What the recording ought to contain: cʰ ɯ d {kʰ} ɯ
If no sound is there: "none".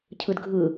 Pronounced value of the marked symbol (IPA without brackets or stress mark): ɡʱ